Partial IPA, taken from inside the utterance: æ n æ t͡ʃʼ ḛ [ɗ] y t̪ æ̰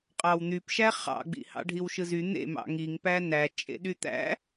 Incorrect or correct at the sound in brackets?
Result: correct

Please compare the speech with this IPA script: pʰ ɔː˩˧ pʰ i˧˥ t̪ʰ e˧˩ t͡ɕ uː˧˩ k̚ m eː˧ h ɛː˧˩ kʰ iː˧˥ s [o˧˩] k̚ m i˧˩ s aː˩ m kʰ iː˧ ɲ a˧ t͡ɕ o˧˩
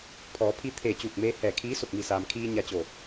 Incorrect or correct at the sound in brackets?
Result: correct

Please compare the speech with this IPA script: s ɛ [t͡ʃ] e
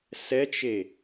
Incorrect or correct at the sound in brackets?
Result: correct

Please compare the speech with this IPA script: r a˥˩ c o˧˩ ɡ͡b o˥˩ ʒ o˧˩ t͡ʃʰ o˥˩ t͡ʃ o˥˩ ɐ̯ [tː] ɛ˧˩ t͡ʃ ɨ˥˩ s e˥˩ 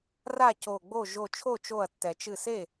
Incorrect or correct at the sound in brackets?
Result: correct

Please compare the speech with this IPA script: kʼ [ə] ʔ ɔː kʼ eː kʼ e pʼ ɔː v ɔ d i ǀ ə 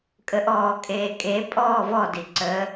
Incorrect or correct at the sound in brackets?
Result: correct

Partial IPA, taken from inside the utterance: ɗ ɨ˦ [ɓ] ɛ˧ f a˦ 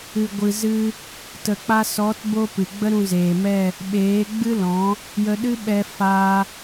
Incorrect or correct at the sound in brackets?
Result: correct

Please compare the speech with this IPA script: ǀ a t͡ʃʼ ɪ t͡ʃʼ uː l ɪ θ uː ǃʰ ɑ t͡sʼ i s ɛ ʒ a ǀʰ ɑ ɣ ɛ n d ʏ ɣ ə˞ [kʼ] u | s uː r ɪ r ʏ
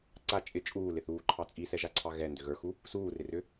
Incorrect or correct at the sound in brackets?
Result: incorrect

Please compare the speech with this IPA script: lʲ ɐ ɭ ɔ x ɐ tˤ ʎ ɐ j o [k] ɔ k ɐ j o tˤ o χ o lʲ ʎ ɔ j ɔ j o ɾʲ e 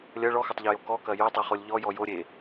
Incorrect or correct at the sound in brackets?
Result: correct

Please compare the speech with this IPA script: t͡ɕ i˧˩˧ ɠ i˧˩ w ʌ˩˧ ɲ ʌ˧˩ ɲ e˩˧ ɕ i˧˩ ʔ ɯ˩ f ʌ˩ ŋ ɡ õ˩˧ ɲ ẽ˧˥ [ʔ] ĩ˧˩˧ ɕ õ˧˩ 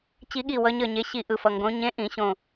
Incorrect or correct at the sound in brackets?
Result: correct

